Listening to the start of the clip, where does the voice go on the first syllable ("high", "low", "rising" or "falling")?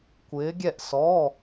rising